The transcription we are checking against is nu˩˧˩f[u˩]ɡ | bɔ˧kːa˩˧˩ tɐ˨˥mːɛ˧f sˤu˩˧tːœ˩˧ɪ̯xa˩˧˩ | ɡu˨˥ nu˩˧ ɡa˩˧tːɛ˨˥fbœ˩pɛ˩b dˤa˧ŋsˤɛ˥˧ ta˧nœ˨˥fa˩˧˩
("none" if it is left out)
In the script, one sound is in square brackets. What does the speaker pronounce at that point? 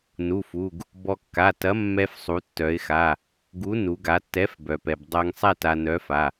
u˩˧˩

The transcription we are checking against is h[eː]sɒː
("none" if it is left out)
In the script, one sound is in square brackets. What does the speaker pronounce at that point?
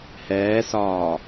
ɛː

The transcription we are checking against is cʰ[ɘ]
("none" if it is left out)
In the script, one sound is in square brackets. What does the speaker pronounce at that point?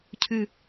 ʉ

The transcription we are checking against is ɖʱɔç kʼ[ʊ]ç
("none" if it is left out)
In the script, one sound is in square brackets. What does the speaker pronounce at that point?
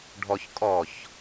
ɔ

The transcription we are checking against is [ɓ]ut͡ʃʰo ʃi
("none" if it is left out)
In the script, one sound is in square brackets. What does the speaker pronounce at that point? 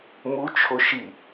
m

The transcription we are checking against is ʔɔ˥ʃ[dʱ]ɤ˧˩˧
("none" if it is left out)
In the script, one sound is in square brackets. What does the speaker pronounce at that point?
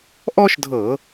dʱ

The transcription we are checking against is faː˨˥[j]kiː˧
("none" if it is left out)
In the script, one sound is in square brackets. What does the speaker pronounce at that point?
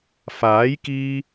j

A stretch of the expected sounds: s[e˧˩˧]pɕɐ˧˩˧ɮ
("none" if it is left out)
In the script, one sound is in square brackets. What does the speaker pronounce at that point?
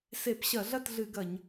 e˧˩˧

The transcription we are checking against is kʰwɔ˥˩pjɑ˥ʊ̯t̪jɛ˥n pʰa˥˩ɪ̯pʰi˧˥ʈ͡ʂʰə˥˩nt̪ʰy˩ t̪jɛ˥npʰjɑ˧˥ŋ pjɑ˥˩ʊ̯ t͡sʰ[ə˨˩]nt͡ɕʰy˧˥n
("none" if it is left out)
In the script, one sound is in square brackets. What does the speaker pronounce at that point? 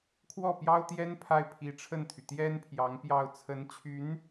ə˧˥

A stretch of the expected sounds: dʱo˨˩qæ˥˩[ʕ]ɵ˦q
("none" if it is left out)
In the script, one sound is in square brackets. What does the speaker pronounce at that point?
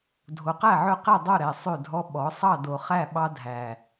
ʕ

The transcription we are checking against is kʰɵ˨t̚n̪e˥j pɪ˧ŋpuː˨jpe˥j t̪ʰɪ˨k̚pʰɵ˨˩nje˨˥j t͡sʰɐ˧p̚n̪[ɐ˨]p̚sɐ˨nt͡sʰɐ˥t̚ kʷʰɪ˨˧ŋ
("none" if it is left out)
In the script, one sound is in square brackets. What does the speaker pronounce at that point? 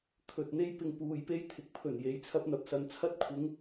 ɐ˨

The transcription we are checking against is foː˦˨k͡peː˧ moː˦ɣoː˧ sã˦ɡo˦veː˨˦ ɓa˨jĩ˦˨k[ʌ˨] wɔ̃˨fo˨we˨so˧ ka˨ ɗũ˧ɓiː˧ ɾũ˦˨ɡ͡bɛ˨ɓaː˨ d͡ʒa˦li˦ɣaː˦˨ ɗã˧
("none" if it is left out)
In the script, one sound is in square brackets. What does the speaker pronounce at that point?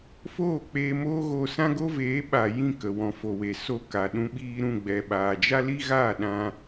ə˨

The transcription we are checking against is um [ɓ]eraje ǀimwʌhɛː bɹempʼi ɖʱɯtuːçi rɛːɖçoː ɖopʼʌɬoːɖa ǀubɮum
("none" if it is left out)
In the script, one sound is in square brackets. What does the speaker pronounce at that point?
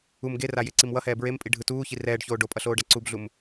ɡ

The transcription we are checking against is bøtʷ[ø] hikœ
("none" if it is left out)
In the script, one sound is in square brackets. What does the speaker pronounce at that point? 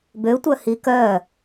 œ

